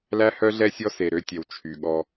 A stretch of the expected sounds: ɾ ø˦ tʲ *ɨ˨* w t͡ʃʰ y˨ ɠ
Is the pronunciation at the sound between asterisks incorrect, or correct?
incorrect: ɛ˨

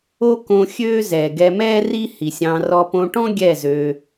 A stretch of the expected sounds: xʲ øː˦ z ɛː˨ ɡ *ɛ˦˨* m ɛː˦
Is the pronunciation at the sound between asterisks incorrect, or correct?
incorrect: ɛ˧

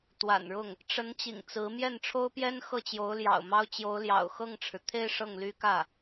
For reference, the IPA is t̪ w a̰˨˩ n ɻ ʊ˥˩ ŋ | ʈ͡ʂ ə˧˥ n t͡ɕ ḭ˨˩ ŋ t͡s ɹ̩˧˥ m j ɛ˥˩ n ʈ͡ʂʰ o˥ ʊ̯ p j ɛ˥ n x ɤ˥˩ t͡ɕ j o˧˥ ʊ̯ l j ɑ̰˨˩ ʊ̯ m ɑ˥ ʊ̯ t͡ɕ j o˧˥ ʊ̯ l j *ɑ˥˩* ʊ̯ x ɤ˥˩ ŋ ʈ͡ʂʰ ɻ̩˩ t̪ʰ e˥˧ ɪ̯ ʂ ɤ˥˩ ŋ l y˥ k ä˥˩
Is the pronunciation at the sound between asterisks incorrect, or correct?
incorrect: ɑ̰˨˩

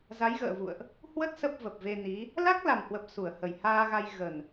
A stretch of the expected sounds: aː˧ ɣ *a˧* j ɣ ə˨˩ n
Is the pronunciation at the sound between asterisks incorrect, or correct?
correct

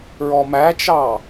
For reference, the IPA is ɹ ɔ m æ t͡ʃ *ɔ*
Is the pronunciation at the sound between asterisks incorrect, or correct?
incorrect: ɑ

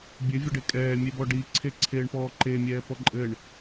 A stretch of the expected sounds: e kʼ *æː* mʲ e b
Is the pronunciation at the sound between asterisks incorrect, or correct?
incorrect: ɛː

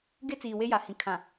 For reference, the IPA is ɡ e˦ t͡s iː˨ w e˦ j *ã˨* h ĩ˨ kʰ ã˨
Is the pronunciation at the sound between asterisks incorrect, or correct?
incorrect: a˨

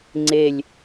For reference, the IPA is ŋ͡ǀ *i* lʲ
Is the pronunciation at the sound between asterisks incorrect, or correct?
incorrect: e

